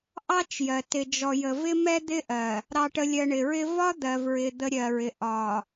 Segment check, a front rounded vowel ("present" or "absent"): absent